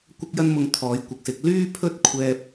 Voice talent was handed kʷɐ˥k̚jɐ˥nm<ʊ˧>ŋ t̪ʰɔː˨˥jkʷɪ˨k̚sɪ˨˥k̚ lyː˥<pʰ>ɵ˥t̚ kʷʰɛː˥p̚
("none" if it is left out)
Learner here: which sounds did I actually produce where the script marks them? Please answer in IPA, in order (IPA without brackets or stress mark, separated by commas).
ʊ˧, pʰ